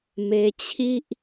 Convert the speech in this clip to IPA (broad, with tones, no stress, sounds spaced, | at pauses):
m e˧ t͡ɕʰ i˦ ʔ